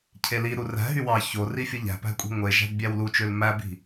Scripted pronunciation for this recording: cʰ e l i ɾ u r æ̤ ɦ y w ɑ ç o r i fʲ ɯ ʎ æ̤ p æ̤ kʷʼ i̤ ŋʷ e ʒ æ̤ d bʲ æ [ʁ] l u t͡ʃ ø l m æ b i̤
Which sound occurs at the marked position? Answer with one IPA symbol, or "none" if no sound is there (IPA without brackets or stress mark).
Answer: w